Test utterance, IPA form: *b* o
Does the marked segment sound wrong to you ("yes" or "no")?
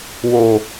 yes